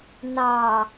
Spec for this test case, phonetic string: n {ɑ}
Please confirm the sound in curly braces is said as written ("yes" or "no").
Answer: yes